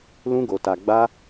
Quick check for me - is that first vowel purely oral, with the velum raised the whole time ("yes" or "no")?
no